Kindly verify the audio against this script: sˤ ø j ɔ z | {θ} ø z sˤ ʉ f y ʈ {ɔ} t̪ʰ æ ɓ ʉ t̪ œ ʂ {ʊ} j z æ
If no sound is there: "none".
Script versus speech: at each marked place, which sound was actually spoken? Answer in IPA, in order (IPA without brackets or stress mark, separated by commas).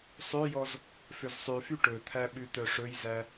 f, ɵ, ɵ